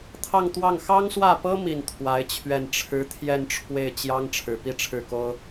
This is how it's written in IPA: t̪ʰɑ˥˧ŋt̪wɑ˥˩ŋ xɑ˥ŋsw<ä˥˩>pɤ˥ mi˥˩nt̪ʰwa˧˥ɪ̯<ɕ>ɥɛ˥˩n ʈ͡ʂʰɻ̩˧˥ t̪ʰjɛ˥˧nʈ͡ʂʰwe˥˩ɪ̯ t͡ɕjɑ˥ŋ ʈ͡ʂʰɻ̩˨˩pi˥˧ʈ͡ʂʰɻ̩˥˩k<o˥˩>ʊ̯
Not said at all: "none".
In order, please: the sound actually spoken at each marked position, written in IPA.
ä˥˩, t͡ɕʰ, o˥

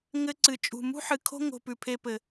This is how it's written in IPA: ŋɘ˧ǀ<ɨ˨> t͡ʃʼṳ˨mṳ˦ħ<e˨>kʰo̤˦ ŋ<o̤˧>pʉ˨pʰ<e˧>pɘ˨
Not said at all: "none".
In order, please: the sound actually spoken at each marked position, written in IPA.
ɨ˨, ɨ˨, o̤˧, e˧

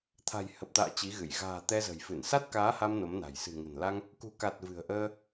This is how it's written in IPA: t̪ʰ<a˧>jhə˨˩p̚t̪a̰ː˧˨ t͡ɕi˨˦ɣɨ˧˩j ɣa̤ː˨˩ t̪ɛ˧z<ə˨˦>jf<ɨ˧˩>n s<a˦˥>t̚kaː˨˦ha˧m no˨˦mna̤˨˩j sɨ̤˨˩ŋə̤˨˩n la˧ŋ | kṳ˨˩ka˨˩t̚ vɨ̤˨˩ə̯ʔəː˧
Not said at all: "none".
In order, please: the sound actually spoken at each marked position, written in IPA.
a̤˨˩, ə̤˨˩, ɨ˧˩, a˦˥

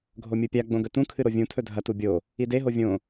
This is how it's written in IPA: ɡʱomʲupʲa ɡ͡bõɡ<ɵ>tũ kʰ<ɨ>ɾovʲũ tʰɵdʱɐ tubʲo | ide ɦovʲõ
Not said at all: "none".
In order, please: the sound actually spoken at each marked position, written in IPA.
ɵ, ɨ

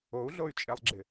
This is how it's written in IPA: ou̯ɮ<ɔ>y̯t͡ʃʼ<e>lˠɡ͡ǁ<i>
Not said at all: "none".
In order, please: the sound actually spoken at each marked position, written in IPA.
o, e, ɪ

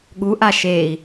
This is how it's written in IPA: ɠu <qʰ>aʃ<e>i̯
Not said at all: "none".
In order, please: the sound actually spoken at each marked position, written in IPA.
ʔ, e

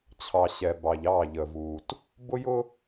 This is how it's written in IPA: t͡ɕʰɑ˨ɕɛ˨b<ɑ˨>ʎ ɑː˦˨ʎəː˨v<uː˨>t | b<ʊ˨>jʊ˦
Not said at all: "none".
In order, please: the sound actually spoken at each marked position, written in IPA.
ɑ˨, uː˨, ʊ˦

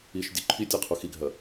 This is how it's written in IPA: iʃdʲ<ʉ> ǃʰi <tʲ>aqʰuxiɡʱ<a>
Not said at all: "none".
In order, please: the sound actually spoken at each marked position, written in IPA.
ʉ, tʲ, ɐ

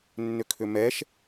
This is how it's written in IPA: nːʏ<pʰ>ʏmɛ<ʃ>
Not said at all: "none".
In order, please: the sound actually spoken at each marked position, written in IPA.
kʰ, ʃ

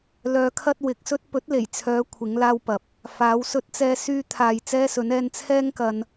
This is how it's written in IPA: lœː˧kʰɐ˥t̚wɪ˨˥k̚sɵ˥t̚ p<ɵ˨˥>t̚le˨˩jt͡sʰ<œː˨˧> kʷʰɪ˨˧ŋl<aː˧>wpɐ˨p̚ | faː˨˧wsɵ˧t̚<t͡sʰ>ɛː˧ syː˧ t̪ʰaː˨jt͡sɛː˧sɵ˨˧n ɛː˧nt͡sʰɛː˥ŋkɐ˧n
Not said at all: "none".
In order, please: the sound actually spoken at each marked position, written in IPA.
ɵ˨˥, œː˨˧, aː˧, t͡s

